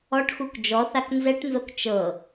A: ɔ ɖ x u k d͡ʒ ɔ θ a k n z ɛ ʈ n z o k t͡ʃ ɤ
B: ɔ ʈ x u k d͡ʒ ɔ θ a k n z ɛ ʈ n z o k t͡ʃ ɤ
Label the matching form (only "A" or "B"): B